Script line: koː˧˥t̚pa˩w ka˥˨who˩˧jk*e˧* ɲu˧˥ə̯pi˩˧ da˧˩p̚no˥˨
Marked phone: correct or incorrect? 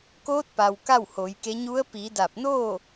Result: incorrect: e˧˥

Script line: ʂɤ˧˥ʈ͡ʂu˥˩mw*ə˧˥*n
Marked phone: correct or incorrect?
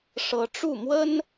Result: incorrect: ə˥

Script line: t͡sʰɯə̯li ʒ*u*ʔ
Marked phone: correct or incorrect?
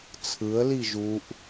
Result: correct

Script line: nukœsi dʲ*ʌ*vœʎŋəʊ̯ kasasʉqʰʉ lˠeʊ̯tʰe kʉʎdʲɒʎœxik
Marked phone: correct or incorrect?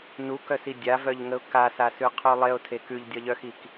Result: incorrect: a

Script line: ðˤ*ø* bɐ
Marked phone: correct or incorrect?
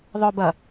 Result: incorrect: œ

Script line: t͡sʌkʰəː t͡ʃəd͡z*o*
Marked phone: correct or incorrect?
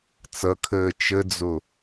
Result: correct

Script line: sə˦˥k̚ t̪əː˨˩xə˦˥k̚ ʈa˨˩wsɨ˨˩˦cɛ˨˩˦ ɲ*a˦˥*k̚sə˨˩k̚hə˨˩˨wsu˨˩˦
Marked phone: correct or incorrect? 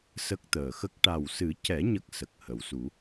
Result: incorrect: ə˦˥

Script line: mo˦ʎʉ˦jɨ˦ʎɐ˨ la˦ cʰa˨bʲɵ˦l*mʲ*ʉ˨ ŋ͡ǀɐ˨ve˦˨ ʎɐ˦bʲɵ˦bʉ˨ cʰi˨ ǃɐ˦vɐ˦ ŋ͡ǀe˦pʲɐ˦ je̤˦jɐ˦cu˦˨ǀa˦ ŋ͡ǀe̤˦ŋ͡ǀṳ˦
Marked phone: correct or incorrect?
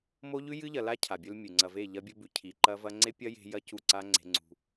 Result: correct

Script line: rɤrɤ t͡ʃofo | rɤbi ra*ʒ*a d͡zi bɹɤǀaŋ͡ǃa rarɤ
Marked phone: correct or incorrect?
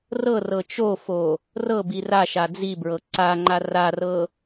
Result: incorrect: ʃ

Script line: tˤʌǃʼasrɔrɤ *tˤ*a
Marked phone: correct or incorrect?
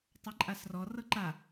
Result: incorrect: ǃ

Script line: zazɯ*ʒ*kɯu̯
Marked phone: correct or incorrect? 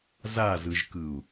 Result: correct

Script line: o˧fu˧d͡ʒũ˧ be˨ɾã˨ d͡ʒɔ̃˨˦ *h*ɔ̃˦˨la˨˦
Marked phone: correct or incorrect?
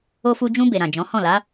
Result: correct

